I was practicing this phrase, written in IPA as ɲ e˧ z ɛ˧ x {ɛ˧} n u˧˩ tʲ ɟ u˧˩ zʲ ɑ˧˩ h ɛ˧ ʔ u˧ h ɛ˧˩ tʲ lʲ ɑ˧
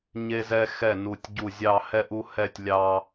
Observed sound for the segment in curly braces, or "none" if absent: ɛ˧˩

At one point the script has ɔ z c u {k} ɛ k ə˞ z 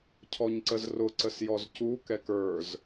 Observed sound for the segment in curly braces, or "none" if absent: k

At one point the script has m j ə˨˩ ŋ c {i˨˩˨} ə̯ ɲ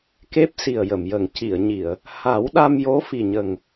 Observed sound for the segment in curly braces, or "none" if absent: i˨˩˨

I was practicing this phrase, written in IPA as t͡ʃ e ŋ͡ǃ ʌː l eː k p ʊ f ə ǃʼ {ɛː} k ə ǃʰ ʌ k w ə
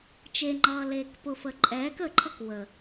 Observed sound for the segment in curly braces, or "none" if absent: ɛː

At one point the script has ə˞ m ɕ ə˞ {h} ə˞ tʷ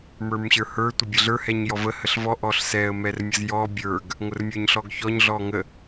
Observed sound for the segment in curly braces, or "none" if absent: h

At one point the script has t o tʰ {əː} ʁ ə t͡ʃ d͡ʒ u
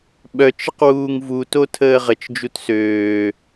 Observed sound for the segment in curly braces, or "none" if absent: əː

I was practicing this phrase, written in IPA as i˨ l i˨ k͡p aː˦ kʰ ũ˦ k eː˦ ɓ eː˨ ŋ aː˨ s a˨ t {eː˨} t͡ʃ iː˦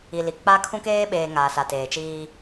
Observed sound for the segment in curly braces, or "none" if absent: eː˨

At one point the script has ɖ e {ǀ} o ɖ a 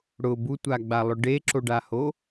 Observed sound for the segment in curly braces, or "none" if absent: ǁ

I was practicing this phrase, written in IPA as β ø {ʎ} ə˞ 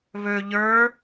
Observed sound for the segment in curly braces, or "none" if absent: ʎ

